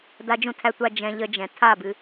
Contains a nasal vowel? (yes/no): yes